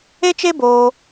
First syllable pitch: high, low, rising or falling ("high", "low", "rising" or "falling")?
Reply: high